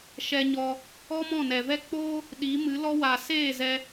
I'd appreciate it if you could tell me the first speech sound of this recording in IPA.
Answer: ʃ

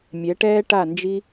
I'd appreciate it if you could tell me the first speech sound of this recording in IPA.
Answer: mʲ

